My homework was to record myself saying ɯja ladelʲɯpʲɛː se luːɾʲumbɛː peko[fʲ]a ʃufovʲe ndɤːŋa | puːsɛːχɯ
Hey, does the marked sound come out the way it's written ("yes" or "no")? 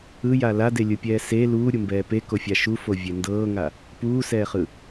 yes